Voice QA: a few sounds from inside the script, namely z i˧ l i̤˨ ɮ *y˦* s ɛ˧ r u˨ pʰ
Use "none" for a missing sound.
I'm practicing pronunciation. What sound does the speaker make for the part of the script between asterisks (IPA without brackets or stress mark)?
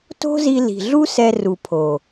u˦